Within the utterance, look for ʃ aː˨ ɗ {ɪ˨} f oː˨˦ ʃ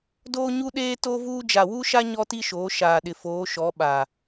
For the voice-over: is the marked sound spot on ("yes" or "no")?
yes